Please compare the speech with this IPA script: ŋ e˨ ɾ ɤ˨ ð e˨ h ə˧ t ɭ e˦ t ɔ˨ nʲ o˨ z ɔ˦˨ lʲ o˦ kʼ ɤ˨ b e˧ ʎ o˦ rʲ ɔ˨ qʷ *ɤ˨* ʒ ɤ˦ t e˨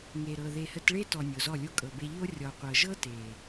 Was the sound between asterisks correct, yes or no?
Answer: yes